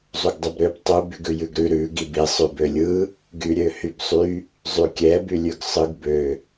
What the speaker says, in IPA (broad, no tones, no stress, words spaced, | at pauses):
zˤuɡdˤʉbɾøb tˤu byɡʉjʉɡɾʉ ɾʉ ɡibi sˤʉbølʲɯ | ɡyɾʲøhybsˤy | zˤykʲɛ bylʲʉɡsˤɯɡ bø